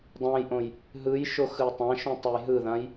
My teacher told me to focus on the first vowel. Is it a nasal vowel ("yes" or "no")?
yes